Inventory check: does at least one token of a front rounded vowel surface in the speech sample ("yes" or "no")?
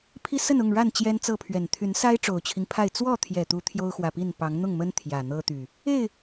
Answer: yes